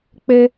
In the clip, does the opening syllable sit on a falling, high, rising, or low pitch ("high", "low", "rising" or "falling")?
high